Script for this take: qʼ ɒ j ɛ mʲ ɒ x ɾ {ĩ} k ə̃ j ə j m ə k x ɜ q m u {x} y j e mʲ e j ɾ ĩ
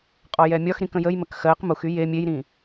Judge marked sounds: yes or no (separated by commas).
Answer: yes, yes